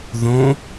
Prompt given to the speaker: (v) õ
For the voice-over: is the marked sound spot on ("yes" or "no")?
no